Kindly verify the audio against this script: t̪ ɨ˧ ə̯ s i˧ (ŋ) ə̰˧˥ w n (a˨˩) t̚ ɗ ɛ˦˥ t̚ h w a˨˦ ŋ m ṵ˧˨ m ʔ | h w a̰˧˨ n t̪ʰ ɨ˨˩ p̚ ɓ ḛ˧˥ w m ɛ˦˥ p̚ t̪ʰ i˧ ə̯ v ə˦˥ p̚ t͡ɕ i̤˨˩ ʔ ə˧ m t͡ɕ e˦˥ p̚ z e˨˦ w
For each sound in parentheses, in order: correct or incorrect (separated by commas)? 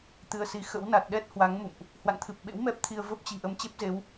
incorrect, correct